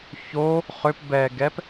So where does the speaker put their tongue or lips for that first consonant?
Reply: palate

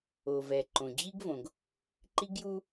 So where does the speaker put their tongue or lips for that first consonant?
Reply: lips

